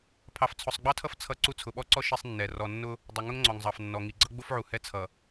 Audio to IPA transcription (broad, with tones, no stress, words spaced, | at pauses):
pʰɑ˨ft͡sʰʊ˨sˤɡ͡bɑ˦tʰʌ˦f t͡sʰʌ˦ǀu˦ t͡sʰʊ˨ɓɔ˦ǀɔ˦ ʃi˦sˤnːɛ˨ rɔ˨nːʊ˦ | dˤʊ˨ ŋʊ˦ŋŋ͡ǀɔ˨ŋzˤɑ˨fnːɔ˨ ŋi˨ɡ͡ǀʌ˦ɡ͡bʊ˦fʕu˨ hɛ˦ t͡sʰʌ˨